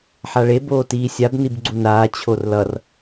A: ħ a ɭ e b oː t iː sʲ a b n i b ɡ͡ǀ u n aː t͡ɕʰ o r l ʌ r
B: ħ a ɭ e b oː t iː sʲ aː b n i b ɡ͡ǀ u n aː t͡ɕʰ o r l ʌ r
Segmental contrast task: A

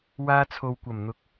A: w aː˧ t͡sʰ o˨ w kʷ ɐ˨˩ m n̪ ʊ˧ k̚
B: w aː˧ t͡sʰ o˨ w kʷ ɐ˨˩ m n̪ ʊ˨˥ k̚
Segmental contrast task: B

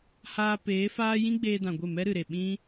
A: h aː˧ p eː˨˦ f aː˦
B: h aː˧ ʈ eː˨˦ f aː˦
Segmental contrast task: A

